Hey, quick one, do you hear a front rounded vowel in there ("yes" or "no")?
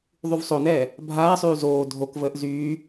yes